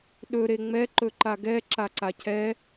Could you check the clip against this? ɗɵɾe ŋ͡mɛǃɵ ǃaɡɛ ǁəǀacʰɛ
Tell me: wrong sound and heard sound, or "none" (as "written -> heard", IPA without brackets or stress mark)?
ə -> a